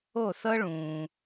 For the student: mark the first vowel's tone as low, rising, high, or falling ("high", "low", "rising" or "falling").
falling